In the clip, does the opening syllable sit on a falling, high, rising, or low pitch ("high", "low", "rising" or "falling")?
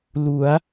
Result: rising